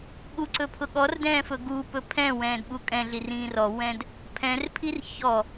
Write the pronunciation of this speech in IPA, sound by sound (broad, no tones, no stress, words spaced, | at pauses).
ɠuǀɵpʰʊ ɠɔrdɛ̃ːfɵ ɡupɵ pʰɛ̃wɛ̃ːdɓu kʼɛ̃ɮirĩː rɔwɛ̃d | pʰɛ̃rpʰir çɔ